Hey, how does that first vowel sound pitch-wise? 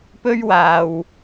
high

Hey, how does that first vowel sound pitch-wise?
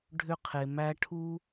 high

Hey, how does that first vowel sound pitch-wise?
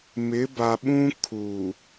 rising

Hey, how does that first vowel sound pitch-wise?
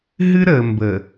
high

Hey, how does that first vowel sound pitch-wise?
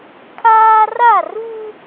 high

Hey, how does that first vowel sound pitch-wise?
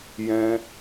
high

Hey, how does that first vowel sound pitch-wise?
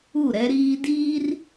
falling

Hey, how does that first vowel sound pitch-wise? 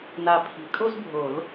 low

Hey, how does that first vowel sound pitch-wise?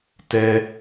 high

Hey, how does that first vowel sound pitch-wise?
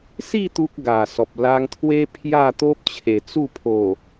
falling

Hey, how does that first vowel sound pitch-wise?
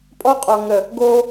high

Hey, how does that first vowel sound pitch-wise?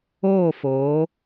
falling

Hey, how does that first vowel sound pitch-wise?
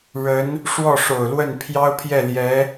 rising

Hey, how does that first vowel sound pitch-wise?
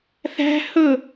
high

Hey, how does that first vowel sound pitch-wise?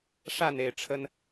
falling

